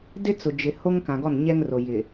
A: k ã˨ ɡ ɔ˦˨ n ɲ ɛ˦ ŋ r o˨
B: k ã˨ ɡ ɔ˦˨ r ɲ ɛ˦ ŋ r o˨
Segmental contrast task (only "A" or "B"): A